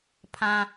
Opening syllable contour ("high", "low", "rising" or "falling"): high